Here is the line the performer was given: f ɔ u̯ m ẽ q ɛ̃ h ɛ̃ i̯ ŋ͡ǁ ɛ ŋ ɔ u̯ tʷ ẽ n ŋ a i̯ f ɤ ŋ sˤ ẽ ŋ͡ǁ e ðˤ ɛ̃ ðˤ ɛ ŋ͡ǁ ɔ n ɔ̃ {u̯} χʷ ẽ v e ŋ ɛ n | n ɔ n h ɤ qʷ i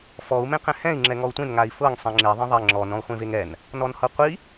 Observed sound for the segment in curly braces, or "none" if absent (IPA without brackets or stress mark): u̯